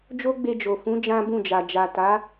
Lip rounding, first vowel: rounded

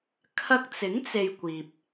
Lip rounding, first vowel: unrounded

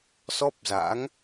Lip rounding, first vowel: rounded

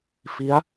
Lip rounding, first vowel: unrounded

